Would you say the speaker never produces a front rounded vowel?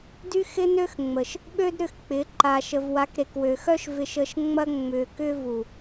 no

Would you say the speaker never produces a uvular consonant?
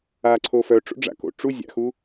yes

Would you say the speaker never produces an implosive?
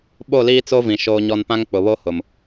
no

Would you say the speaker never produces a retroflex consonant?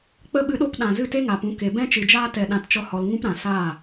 yes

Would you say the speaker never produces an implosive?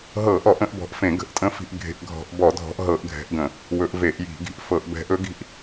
yes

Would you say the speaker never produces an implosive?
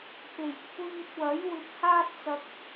yes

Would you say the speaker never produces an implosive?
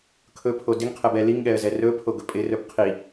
no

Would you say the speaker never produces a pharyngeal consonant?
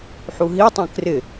no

